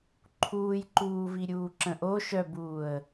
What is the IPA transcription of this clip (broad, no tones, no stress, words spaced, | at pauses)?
ǃʰuːjǃuːvi ɾʲuːǁə̃ʔo ʃœbuːə̯